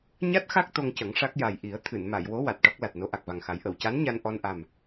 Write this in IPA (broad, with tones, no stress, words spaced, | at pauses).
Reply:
ɲa˦˥t̚xa˦˥k̚ t̪o˧ŋcə˨˩˦ŋʂa˦˥k̚ja˨˩j ʔi˨˩˦ə̯ t̪ʰɨ˨˩˨nma˨˩˨jwo˧˥ wa˨˩t̚ʈɔ˦˥k̚la˨˩t̚no˧˥ ʔa˨˩k̚va˨˩ŋxa˨˩˦j ʔə˨˩˨wca˧˥n ɲa˧nʔɔ˧n ʔa˨˩m